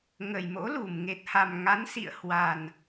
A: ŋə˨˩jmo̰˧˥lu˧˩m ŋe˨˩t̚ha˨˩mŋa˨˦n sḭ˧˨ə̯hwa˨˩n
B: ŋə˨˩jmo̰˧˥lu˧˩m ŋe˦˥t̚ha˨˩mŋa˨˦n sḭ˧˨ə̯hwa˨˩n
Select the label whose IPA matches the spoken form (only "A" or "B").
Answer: A